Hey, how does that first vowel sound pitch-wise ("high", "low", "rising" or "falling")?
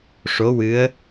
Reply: rising